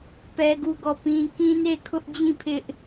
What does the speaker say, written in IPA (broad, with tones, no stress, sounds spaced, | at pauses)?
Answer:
p ɛ˦ ɡ u˦˨ ɡ ɔ˦˨ p ĩ˦ k ĩ˦ n e˦˨ kʰ ʊ˦ ʔ d͡ʑ ĩ˦˨ pʰ ɪ˦ ʔ